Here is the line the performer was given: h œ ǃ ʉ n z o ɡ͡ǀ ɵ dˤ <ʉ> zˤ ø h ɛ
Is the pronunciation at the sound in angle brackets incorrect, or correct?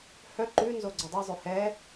incorrect